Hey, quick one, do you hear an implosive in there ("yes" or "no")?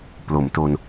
no